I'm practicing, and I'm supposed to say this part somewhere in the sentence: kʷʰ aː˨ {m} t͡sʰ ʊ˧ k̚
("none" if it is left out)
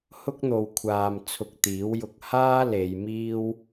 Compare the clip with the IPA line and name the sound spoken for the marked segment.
m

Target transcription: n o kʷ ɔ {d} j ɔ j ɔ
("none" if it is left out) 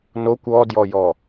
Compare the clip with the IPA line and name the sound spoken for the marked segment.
d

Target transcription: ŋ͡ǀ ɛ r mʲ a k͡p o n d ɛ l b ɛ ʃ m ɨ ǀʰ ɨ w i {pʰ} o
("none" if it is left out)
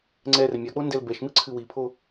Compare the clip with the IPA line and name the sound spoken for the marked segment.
pʰ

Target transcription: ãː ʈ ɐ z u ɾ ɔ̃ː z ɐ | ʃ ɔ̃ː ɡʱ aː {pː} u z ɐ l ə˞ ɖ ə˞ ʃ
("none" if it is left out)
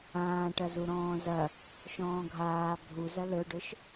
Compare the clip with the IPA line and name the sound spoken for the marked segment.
bʱ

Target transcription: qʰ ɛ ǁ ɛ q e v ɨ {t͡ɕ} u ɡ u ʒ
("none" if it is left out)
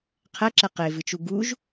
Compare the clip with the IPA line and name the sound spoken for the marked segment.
t͡ʃ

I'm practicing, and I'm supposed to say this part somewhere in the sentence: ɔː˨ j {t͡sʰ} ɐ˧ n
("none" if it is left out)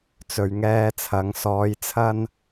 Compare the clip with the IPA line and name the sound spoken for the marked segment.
t͡sʰ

